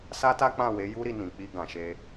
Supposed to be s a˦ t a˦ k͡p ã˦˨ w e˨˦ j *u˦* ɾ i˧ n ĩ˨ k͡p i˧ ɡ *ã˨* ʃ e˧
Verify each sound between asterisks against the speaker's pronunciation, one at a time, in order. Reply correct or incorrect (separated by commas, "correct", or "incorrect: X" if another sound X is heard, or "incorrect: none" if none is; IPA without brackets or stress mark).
correct, correct